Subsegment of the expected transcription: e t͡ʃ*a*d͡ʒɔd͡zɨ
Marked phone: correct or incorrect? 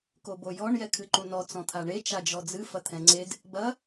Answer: correct